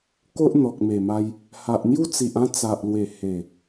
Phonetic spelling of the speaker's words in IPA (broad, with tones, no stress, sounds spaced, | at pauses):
k o˦ ʔ n̪ ɔ˨ k̚ m e˨˩ m a˧ j | h a˨ ʔ n̪ j u˦ t͡s i˨ ʔ ã˥˧ t͡s a˨ ʔ l w e˨˩ h e˨˩